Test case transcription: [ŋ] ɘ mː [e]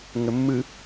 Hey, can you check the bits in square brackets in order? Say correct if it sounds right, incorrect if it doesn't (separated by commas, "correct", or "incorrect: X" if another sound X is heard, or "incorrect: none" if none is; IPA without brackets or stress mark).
correct, incorrect: ɨ